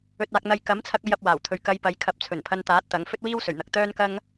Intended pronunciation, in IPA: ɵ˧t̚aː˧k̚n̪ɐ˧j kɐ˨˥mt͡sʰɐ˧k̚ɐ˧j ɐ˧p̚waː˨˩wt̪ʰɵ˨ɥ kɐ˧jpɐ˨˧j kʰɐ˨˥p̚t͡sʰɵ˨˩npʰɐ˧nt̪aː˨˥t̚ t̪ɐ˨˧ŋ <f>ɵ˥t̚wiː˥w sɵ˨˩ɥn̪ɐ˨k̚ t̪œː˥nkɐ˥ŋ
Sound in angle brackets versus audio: correct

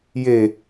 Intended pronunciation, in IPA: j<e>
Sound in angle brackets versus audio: correct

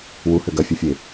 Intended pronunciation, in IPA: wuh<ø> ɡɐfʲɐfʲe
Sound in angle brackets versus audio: correct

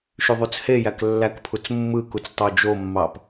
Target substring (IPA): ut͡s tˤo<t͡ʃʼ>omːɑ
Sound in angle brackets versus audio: incorrect: d͡ʒ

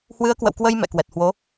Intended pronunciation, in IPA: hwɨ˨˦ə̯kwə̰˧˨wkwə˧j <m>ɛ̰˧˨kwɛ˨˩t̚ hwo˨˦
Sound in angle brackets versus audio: correct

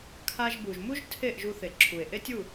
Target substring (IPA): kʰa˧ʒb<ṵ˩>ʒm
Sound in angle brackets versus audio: incorrect: u˩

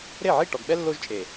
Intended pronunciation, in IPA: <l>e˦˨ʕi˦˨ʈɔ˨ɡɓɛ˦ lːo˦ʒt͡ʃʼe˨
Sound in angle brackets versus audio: incorrect: ɾ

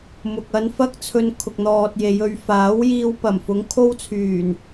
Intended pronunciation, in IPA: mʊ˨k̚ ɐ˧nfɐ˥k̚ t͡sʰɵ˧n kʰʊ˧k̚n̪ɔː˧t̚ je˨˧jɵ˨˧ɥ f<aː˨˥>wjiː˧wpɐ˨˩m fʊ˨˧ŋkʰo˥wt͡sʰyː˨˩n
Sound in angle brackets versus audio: correct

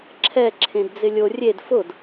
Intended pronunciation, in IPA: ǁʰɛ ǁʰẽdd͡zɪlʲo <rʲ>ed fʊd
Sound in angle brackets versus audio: correct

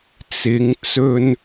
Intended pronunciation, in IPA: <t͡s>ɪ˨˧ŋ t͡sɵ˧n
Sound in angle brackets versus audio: correct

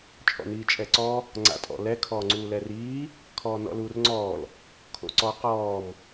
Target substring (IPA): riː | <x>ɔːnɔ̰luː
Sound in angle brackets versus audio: incorrect: kʰ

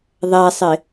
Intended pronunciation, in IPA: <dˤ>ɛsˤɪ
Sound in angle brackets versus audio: incorrect: ðˤ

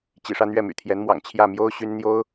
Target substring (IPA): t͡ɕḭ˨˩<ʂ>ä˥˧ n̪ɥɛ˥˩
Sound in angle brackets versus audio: correct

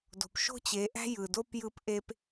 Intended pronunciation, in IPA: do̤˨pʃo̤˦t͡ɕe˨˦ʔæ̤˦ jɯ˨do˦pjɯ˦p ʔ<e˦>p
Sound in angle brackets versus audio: correct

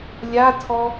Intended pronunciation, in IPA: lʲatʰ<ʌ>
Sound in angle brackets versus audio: incorrect: ɔ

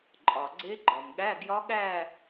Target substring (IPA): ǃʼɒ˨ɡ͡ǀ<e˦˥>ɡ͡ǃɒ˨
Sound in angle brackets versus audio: correct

